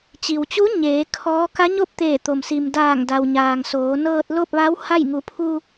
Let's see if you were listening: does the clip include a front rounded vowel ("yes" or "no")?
no